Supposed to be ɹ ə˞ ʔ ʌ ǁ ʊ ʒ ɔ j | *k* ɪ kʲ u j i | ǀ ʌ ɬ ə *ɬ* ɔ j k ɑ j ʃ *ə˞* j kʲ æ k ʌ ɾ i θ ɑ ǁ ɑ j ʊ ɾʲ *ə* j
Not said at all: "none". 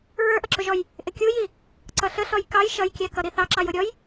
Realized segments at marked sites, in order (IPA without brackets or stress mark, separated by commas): ʔ, ɬ, ʌ, ɔ